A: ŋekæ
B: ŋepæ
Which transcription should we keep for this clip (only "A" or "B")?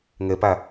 B